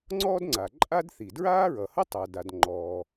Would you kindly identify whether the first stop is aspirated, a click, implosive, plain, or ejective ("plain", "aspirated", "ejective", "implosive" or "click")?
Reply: click